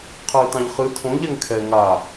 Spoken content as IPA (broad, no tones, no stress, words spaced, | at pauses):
qʰɜɪ̯tɑ̃ʎχɨ tʰõ ʎɛŋkʰɛ ŋa